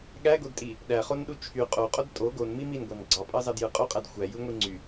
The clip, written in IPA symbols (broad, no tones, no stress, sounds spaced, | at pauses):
ɠ æ ɡ o d tʼ i | ɗ æ χ o n ɗ u t͡ʃʰ y qʼ o qʼ o d tʼ o ɡ o n m i m i n ɡʷ ɑ n ɡ͡ǀ ɑ pʼ ɑ z ɑ d j ɯ qʼ o qʼ æ d xʷ æ j ɯ ŋʷ i ŋ͡ǀ y